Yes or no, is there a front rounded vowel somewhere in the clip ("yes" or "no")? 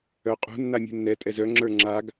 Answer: yes